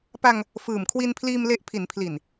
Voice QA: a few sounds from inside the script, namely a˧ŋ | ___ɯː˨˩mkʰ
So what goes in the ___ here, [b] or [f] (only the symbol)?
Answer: f